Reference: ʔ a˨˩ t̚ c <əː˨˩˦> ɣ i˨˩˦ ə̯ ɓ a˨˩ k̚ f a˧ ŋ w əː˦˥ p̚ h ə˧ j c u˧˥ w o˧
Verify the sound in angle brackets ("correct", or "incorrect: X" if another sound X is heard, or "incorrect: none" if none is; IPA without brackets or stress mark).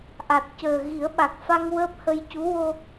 incorrect: əː˨˩